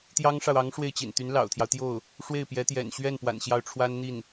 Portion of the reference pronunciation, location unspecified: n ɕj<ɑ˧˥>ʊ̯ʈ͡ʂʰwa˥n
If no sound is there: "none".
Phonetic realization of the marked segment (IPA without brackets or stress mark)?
ɑ˥˩